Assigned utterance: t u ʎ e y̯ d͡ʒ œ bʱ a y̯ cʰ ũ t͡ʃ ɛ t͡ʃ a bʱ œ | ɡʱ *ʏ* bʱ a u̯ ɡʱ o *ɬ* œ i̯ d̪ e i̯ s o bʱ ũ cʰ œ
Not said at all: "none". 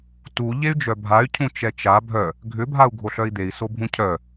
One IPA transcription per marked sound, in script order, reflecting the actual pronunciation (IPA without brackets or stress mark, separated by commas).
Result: ʏ, ɬ